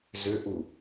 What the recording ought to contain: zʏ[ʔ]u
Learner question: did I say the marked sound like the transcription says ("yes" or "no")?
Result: yes